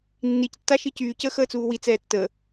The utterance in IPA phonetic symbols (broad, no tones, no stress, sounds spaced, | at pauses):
nː i c tː a ʃ i c yː c əː x əː t͡s uː w i t͡s ɛː tː əː